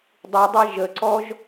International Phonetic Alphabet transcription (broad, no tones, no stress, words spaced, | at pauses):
dˤidˤɛ ʒəǀɔʒ